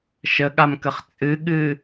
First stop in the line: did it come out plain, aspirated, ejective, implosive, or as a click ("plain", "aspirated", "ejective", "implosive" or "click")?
implosive